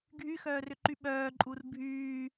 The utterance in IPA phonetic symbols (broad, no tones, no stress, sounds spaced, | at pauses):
ɡʱ y x œː r ʏ ǃ y ɓ œː ǃʼ u r bʱ yː